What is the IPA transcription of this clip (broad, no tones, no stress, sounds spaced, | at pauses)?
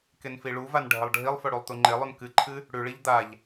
k e n f i ɭ u v a n ɖʱ ɐ lˠ ɖʱ i lˠ f ɵ ɽ u lˠ t̪ u ŋ͡ǃ e lˠ ʉ n k ɨ ǃʰ ɨ | ɽ ʉ ɭ i ʎ d̪ a ʎ